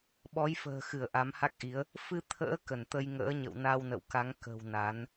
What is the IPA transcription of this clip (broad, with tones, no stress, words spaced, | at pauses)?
ɓɔ˨˦jfə̤ː˨˩xɨ˧˩ə̯ ʔa˨˦mha˦˥k̚ʔi˨˦ə̯ | fɨ˧t̪ʰə̰ː˧˥ kə˧˩nt̪ə˧j ŋə̰ː˧˥ɲə̰˧˨wna˧w nə̰˧˨wka˨˦ŋ kə̤˨˩w na˨˦n